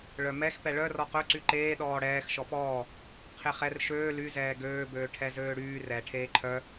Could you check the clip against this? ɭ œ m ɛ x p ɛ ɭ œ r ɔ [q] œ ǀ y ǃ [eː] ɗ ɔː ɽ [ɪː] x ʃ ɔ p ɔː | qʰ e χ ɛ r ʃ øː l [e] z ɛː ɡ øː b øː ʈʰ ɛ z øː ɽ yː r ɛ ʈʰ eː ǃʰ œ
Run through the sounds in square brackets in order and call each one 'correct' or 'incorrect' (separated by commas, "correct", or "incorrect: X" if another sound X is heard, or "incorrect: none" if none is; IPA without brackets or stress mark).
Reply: correct, correct, incorrect: ɛː, incorrect: y